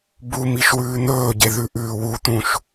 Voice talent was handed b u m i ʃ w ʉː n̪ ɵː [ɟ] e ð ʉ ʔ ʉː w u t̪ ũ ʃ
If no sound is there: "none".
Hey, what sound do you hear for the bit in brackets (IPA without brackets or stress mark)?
ɟ